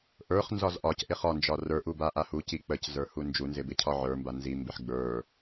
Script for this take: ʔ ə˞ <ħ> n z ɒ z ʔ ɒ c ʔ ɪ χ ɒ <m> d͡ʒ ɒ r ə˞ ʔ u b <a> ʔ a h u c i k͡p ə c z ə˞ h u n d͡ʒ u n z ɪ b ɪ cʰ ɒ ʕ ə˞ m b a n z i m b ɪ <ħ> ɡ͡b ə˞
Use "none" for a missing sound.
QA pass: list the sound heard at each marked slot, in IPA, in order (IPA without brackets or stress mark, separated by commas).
χ, n, a, ħ